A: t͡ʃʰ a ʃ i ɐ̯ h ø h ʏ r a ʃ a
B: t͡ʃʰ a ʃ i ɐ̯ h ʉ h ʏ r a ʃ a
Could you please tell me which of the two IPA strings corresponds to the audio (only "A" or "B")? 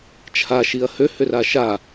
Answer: A